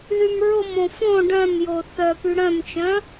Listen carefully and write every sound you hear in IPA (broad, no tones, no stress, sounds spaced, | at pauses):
ð y m ɹ ʊ m õ f õ ɖ œ̃ m j o θ œ p y ɽ œ̃ m t͡ʃ œ̃